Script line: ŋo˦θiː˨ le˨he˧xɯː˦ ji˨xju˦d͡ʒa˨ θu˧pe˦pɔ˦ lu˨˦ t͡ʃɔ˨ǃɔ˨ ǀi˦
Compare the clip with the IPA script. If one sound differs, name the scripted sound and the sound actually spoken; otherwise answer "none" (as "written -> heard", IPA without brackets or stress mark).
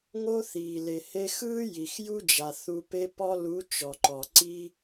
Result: none